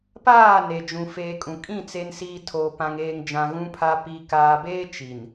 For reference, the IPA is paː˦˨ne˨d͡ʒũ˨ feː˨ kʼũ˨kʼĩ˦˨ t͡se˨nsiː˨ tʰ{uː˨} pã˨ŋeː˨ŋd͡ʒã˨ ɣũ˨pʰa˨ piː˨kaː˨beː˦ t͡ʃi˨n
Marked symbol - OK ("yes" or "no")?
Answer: no